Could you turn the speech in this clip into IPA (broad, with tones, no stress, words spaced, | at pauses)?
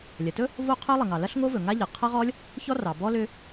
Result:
lʲɐ˩tɵ˦˥ | vo˦˥qʰɵ˦˥lˠɐ˩ŋɑ˩ lɐ˦˥ɬŋo˦˥ vɵ˩ŋa˦˥ʎɐ˩ qʰɐ˦˥ʁɔ˦˥lʲ | çɔ˦˥rɑ˩bɔ˦˥ lʏ˦˥